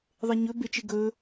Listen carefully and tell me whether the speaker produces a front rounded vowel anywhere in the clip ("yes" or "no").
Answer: no